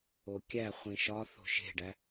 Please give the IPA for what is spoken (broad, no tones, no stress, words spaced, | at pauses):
okʲæχʷĩ ʃɒ θo̤ʃe̤ɖæ